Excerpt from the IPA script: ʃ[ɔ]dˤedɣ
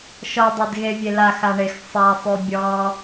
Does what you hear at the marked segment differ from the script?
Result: no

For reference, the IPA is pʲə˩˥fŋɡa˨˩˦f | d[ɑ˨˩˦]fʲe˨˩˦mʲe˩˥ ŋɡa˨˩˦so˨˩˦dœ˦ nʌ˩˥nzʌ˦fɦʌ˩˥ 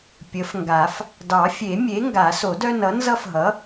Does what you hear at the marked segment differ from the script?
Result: no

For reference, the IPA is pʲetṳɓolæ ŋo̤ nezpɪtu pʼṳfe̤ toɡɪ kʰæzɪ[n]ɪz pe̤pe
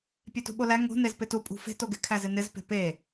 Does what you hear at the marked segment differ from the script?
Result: no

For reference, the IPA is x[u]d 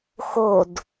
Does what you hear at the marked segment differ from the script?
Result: yes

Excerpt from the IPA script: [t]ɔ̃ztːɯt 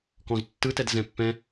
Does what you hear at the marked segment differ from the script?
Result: yes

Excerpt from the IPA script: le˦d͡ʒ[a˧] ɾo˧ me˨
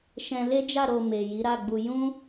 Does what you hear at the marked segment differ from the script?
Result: yes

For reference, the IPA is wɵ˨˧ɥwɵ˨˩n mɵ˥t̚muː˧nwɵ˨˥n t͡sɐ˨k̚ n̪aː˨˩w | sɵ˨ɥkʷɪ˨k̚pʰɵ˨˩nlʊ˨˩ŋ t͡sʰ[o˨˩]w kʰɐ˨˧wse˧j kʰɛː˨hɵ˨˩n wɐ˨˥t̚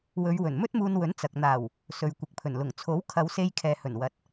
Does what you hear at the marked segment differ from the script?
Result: yes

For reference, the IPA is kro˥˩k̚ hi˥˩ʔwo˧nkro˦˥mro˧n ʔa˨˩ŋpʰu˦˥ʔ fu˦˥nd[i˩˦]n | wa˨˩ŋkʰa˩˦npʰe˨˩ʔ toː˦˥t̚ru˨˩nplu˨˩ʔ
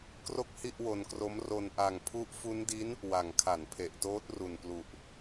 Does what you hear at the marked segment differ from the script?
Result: yes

